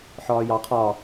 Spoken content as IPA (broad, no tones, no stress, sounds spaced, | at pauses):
ħ ɒː j ɑ qʰ ɒ